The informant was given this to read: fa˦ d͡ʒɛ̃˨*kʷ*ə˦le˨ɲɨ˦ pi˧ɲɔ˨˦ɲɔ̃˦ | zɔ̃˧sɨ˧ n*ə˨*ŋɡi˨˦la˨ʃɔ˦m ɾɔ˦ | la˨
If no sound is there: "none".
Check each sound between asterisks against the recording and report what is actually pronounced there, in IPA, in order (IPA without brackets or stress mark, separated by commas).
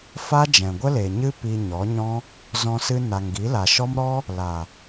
ɡʷ, a˨